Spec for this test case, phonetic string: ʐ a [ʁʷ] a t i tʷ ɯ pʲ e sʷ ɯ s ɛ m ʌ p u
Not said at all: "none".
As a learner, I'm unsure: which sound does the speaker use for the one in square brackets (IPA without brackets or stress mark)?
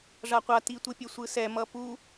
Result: qʷ